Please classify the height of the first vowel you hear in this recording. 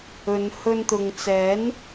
mid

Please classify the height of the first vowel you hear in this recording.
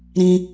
high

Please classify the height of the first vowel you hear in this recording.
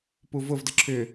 high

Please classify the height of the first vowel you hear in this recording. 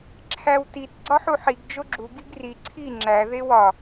low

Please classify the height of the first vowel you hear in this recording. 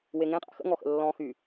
mid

